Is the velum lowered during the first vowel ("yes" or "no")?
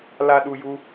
no